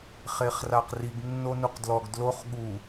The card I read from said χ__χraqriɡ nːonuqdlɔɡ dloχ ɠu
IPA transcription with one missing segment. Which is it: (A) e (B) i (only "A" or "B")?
A